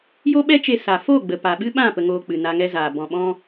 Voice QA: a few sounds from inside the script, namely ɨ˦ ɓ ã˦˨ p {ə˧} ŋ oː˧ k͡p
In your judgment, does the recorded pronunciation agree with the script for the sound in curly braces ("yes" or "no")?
yes